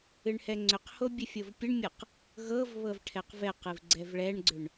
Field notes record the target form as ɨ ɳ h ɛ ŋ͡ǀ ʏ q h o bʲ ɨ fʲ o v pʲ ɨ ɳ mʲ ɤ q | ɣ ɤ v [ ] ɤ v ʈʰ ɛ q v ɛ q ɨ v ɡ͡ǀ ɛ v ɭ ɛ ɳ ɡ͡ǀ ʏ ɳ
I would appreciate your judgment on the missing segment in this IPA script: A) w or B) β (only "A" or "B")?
B